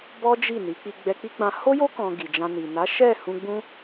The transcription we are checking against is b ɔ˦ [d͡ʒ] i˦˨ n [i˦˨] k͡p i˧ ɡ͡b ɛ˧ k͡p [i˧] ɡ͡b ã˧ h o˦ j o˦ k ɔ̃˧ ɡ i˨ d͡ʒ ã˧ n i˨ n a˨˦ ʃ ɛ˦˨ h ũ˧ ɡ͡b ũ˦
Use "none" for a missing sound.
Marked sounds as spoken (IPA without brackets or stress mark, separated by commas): d͡ʒ, i˨˦, i˦